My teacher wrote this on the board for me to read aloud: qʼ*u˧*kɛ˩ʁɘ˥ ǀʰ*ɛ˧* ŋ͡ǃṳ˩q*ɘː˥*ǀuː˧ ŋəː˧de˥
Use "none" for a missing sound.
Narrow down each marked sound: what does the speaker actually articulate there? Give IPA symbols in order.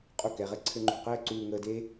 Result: u˧, ɘ˧, ɘː˥

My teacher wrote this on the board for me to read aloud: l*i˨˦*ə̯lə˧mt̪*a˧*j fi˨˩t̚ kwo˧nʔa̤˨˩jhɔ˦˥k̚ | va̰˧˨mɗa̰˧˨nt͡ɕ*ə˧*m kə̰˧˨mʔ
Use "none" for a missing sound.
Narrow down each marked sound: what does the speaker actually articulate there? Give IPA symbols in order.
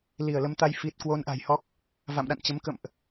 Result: i˧˩, a˧, ə˨˦

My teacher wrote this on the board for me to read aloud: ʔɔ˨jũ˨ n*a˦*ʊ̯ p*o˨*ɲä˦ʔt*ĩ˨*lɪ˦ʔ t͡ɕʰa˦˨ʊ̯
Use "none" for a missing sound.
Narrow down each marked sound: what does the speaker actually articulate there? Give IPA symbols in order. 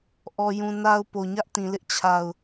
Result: a˦, o˨, ĩ˨

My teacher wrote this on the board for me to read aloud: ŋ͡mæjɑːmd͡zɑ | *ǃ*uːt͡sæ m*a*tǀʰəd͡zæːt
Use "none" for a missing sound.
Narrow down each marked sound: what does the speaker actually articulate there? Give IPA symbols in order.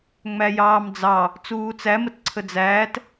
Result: t͡s, ə

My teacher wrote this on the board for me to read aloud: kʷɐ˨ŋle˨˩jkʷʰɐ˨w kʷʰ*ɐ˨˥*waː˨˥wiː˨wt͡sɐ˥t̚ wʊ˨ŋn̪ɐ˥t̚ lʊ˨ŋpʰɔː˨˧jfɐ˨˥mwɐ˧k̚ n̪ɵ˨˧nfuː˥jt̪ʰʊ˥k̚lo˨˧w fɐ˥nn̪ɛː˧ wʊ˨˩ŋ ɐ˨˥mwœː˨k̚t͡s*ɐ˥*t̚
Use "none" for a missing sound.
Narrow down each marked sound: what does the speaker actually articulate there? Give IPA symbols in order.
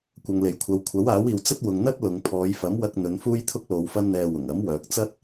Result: ɐ˨˥, ɐ˥

